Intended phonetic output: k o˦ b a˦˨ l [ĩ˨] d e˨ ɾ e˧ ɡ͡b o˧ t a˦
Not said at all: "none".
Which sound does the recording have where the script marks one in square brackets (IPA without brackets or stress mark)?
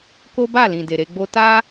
ĩ˨